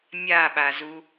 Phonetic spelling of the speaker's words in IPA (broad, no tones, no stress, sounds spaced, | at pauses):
mʲ a ɓ a z u